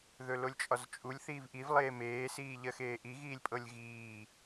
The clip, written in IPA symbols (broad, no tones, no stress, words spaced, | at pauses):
ðɵlolʲt͡ʃʼɒzt͡ʃʼulʲ θiːvʔiv lˠeːmeː siːʎɜxeːʔi ɣiːlʲpʼɤlʲɣiː